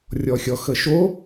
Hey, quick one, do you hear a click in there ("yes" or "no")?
no